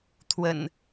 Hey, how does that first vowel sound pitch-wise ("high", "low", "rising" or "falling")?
low